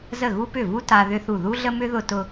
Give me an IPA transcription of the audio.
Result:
z ə˥˩ ɣ u˥ p ʏ˥˩ v u˥ t a˥ ð ʏ˥ θ u˥˩ ð u˥ ɮ ə˥ m ʏ˥ ð ʊ˥ t ʊ˥

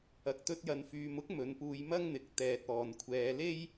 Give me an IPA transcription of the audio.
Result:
ɐ˨ k̚ t̪ ɵ˧ t̚ j ɐ˨ n f yː˨ m ʊ˥ k̚ m ɵ˨˧ n p uː˧ j m ɐ˥ ŋ n̪ ɪ˨ k̚ t̪ ɛː˨ t̚ ɔː˨ n kʷʰ ɛː˧ l e˥ j

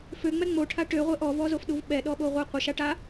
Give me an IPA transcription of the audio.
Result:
f ø ŋ͡m ɛ ŋ͡m o ʈʰ a ʈ ø ʁʷ e ʔ ɔ v ɔ z o f ɗ u v ɓ ɛ ɗ ɔ ɓ o ʁʷ e qʷ ə ʃ a ʈ a

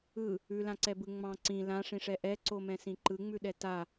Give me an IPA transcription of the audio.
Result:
ɯ | ʉ l ã ǀ ɛ b ɯ ŋ͡m ɑ̃ ǀ ĩ l ã ʂ ĩ ʂ ɛ ʔ ɛ ǀ o m ɛ̃ s ĩ ǃ ɯ ŋ͡m ʉ ɗ ɛ t a

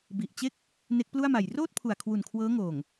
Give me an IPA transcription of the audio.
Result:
b i˨˩ ʔ t͡ɕ e˥˩ k̚ | n e˦˥ k̚ p l u˥˩ a̯ m a˨˩ j r oː˥˩ t̚ pʰ u˨˩ a̯ kʰ w u˨˩ n kʰ w ɤː˦˥ ŋ oː˨˩ ŋ

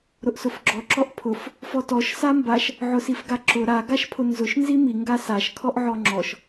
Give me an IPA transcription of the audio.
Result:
ɾ ʊ ʔ s ʊ f ɡ͡ǁ ɔ ǁ ɔ ʔ pʰ ʊ f | f ɔ t ɔ ʃ s a m b a ʃ | ʕ ʊ s i f ɡ a ǁ ʊ ɾ a ɡ a ʃ pʰ ʊ n z ʊ ʃ n z i m i ŋ ɡ a s a ʃ kʰ ɔ ʔ ʕ ɔ ŋ͡ǁ ɔ ʃ

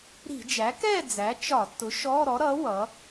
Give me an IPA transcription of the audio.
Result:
ɾ i̤˧˩˧ d͡ʒ æ˩˥ k ɛ˥˨ d͡z æ˩˥ t͡ʃ ɒ˧˩˧ tː ʊ˩˥ ʃ ɔ˧˥˧ ɾ ɔ˩˥ ɾ ʌ˩˥ w ʌ˩˥

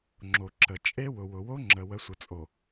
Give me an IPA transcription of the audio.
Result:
ŋ͡ǁ o˨ ǁ ə˨ t͡ʃʼ e˦ w ʊ˨ w ʊ˨ w o˦ ŋ͡ǁ ə˨ w ə˨˦ sʷ ə˨ t͡sʼ o˨

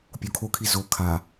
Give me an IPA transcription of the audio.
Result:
pʲ o kʰ o kʰ i z o kʰ a

